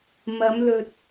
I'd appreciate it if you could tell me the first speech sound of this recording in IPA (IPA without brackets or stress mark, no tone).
m